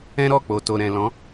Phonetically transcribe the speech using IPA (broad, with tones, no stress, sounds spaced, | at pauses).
ɛ̃˦ ɾ ɔ˦˨ k͡p o˨ t o˨ ɾ ɛ̃˨ l ɔ̃˨˦